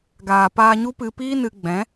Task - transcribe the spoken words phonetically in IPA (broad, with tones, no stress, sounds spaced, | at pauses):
ɡ aː˨ p aː˧ ɲ u˦ p ɨ˧ p iː˦ n ɨ˧ ɡ͡b ɛ̃˨˦